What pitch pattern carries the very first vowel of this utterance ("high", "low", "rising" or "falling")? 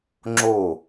falling